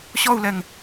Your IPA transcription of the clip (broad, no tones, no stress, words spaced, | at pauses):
ɕɔu̯lɛŋ